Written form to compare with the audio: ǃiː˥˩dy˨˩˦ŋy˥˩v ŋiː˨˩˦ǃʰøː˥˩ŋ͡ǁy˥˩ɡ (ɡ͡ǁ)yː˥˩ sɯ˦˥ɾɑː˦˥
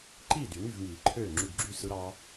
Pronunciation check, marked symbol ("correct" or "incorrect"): correct